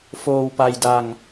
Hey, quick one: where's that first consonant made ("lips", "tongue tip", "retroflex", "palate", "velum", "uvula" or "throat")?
lips